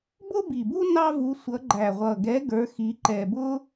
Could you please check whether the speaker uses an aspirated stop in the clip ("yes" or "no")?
no